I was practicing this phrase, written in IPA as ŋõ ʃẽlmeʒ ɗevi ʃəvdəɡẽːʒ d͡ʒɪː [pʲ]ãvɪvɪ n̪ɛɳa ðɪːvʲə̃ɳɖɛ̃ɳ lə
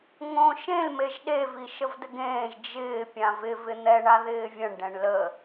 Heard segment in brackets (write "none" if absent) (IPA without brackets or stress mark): pʲ